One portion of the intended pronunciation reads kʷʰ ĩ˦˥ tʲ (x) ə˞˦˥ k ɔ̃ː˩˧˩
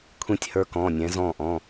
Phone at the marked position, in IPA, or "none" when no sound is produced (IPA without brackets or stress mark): h